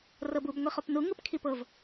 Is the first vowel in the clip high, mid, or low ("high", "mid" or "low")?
mid